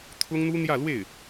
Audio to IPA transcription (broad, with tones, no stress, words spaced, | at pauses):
t̪ʰʊ˥ŋn̪u˥n̪jä˥˧lwe˥˩ɪ̯